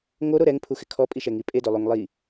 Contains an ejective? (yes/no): yes